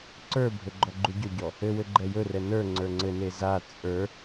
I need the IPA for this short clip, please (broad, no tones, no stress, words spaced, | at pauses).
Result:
ǀə˞bʱɵ ɡ͡ǃɔɡ͡ǃuɟɵɟɔ | ɘwɘ ɡ͡ǃɛjɵrɛ nə˞ ŋ͡ǀə˞ŋ͡ǀɘne za t͡sʼə˞